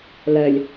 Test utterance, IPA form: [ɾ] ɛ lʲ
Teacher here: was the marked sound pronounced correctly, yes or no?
no